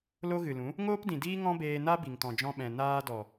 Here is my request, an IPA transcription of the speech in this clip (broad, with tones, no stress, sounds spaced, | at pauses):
l o˧ ɣ ɨ˨ l ũ˨˦ | ŋ oː˦ p d ĩ˨ d iː˦ ŋ ɔ̃˦ b eː˧ n a˦ b i˨ ŋ t ɔ̃˨ d͡ʒ ɔ̃˧ ɓ ɛ̃˨ n aː˧ d ɔ˨